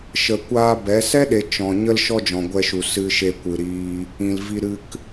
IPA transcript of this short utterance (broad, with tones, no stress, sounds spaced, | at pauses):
ʃ ə˨ kʷ aː˧ b ɛ˨˦ s ɛ˦ ɗ e˨ t͡ʃ ɔ̃˨ ɲ ə˦ l ʃ ɔ˦ d͡ʒ ɔ̃˨ ɡʷ ɛ˧ ʃ u˨ s ɨ˧ ʃ e˧ kʷ ɨ˨ ɾ iː˧ | ĩ˨ l v i˧ ɾ ɨ˦ k